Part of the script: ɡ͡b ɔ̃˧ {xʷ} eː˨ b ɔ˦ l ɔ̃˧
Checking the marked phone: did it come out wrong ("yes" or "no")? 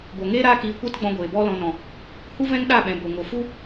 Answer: yes